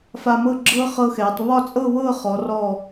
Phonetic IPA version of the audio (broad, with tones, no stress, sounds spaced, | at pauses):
f a˧ m ɤ˥˧ ɡ͡ǁ ɤː˥ χ ɤ˥ x ɛː˩˧ tˤ β ɒ˥˧ t͡sʼ ɤ˥˧ β ɤː˥˧ χ ɔ˩˧ r ɔ˧˩